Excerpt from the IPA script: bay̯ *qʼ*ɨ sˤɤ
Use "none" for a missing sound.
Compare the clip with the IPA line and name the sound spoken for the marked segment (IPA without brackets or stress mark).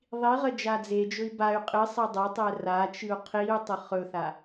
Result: qʼ